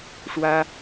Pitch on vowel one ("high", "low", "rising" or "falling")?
high